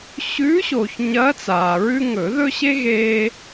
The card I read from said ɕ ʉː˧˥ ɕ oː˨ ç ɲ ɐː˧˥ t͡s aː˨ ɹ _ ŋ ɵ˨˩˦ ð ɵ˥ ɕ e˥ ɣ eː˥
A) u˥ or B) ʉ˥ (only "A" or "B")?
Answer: B